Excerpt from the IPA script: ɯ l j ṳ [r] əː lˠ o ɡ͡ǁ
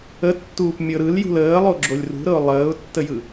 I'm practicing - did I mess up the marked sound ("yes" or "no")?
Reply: yes